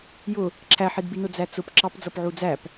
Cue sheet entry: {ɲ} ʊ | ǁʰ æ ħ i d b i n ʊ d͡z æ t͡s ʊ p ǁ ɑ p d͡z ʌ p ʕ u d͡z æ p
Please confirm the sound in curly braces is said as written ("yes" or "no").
no